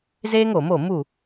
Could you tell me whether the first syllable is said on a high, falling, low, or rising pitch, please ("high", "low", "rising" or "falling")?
high